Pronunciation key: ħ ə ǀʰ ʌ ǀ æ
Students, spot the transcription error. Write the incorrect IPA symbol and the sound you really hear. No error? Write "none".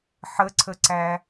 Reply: ʌ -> ə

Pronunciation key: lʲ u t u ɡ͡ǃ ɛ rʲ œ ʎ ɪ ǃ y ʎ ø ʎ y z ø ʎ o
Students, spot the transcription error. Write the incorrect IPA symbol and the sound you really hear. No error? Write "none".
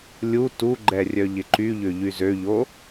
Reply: none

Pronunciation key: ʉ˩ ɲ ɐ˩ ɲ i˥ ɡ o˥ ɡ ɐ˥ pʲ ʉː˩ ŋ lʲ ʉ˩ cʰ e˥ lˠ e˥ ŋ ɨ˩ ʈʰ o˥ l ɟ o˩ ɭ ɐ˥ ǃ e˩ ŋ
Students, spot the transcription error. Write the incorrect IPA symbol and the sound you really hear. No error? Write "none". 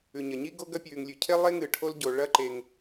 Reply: none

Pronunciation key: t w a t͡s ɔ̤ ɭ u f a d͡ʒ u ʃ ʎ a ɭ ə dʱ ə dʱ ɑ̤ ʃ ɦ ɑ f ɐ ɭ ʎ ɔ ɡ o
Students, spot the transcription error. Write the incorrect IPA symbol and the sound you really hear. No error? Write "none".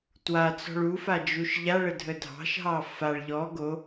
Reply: ɐ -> a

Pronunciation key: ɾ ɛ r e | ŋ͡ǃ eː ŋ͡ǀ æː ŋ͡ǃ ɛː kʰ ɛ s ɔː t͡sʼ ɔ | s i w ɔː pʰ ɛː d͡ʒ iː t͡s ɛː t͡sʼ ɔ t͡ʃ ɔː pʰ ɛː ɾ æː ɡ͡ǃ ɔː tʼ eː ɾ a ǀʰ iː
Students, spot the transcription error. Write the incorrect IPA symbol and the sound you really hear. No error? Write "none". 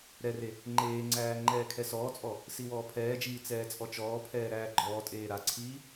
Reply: none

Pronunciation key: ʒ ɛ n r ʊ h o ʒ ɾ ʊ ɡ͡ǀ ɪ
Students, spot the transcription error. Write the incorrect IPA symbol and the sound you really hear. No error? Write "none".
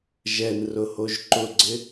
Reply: ɾ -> ǃ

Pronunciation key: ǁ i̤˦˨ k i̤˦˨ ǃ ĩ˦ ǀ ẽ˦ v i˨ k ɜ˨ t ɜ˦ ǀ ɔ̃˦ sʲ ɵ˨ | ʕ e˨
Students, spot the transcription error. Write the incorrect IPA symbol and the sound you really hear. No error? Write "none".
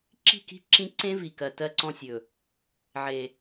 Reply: ǃ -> ǁ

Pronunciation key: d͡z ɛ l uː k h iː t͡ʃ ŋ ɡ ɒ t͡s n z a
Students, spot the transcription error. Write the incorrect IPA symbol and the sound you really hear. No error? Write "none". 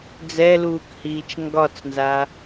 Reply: none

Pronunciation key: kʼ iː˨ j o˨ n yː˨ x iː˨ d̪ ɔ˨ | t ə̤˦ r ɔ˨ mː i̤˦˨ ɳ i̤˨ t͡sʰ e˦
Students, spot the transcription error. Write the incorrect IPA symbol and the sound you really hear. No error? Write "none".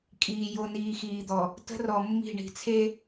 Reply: yː˨ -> iː˨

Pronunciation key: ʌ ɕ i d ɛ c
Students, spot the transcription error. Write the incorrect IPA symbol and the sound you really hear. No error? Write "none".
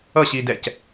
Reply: none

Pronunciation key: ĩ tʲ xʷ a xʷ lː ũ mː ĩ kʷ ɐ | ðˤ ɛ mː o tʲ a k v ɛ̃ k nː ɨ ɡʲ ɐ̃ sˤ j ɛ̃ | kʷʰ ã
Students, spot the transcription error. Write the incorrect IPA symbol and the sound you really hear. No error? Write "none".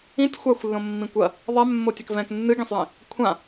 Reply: ũ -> õ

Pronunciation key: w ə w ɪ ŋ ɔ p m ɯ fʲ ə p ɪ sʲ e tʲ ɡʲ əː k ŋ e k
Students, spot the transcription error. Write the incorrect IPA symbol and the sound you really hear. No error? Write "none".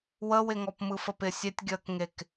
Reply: fʲ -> f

